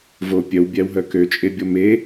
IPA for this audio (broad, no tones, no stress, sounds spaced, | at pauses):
v o pʲ œ w bʲ æ w ɦ œ k ø t͡ʃʼ e bʲ ɔ m e